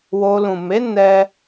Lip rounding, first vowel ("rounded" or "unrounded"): rounded